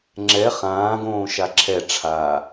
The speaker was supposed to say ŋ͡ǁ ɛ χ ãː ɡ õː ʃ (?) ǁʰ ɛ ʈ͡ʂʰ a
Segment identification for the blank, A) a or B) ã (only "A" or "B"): A